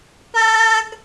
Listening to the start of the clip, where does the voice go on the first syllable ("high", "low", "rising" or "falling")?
high